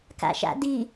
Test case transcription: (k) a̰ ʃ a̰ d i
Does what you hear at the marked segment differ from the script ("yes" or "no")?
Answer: no